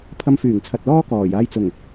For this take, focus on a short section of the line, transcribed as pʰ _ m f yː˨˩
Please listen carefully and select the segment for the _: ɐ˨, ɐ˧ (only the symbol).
ɐ˧